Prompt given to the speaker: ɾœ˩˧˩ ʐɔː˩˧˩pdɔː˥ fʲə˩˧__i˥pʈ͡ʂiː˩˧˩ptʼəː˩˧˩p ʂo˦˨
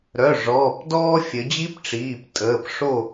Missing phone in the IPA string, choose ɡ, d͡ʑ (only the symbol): d͡ʑ